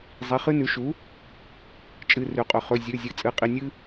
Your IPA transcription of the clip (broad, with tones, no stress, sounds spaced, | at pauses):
zˤ i˩˧˩ χ ɨ˦ n ʉ˩˥ ʃ u˩˥ | t͡ʃʼ ɨ˩˧˩ r ʉ˩ qʼ ɵ˩ χ ɵ˩˧˩ zʲ ʉ˩˧˩ zʲ ɨ˩˥ t͡sʼ ɨ˩˧˩ qʼ i˩˧˩ nʲ ɨ˦